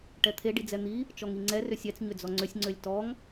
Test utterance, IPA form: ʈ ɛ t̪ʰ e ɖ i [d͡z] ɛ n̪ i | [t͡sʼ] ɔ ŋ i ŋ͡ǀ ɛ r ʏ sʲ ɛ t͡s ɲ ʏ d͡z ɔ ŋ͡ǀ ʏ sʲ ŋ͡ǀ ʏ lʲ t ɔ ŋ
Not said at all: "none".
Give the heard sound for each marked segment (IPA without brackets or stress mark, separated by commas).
d͡z, t͡ʃ